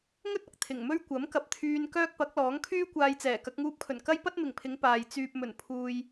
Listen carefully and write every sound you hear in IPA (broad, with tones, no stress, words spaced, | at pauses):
ŋɵ˥t̚ɐ˨k̚ t̪ʰɪ˨˩ŋmɵ˥ɥ kʷɐ˨˥mkɐ˨p̚t̪ʰyː˧n kœː˥k̚pɐ˨˥k̚lɔː˨˥ŋ kʰyː˥kʷaː˧jt͡sɛː˨˩ kɐ˧k̚ŋuː˧p̚kʰɵ˨˩n kɐ˥jpɐ˥t̚mɪ˨˩ŋpʰɪ˨˧ŋ paː˨j t͡syː˨p̚mɵ˨˩n pʰuː˨j